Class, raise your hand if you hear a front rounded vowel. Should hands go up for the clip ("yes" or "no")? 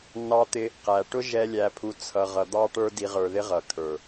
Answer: no